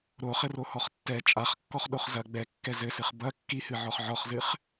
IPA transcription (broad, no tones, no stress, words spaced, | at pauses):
ɾoχɘrohɔχ tːɛ t͡ʃʼaχkːɔχɗoχ zɐ ɡ͡bɛkːɛ zɘsɨχ bɐ kːihɨʕɔχ ʕɔχzɨχ